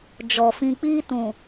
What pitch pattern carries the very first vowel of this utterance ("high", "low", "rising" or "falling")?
low